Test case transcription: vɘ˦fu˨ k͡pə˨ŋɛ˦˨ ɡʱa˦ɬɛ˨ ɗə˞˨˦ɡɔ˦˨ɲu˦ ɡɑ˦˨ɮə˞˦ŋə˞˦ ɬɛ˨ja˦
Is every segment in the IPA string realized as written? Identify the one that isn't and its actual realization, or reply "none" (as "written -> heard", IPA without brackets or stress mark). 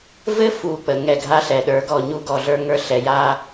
ɑ˦˨ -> ɔ˦˨